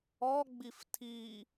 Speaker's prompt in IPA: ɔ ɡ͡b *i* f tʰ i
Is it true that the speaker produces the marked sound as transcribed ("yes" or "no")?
yes